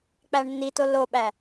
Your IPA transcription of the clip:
k͡pæɳnːito loɓæ

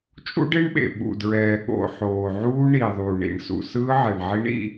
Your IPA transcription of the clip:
t͡ʃʼṵ˦ɖe˦ɳɓḛ˨ ɓṵ˨dɹɛː˨ ɠo̰˨ ħoː˨ʕuː˦ ɳiː˨ðˤuː˨ɳḭ˨ɳsṵ˨ sɯː˦ʕɛ˨ɳʕi˦ɳḭ˦

